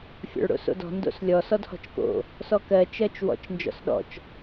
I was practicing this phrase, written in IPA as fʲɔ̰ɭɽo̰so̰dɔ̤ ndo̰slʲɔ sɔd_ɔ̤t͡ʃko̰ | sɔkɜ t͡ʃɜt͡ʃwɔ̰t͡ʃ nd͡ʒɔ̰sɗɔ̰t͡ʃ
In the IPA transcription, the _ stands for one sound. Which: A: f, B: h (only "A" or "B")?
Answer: B